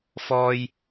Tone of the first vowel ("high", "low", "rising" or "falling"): low